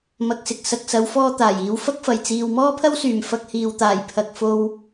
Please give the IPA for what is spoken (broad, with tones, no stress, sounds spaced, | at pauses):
m ɐ˨ k̚ s ɪ˨ k̚ s ɐ˨ k̚ s ɐ˨˧ w f ɔː˧ t̪ aː˨˩ j iː˨˧ w f ɐ˥ k̚ f ɐ˨˩ j t͡s iː˨ w m ɔː˥ pʰ ɐ˥ w s yː˨˩ m f ɐ˧ k̚ h iː˨ w t̪ aː˨˩ j pʰ ɐ˨ k̚ f o˧ w